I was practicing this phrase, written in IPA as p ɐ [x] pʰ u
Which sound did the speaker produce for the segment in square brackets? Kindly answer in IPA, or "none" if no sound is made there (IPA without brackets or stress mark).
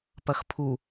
x